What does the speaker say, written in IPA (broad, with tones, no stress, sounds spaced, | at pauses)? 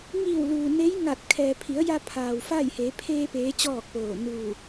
ŋ iː˧˩ w l uː˩ n e˧˥ j ŋ a˧˩ t̚ kʰ ɛː˩ pʰ i˩˧ ə̯ j a˧ pʰ aː˩ w f aː˥˨ j h eː˩˧ pʰ eː˧ p eː˧˥ t͡ɕ ɔː˥˨ k̚ p oː˧˩ n uː˧˩